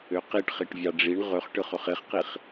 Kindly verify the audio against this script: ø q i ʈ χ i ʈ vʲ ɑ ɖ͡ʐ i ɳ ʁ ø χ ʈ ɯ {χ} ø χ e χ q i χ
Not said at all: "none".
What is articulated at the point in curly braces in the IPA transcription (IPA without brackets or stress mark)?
χ